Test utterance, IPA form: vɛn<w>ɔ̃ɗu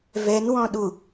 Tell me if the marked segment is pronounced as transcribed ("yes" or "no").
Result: yes